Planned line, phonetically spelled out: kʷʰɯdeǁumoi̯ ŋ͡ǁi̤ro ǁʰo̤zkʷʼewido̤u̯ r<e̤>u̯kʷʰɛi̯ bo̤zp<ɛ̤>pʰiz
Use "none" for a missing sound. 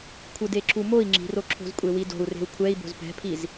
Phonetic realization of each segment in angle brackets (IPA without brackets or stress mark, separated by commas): e̤, ɛ̤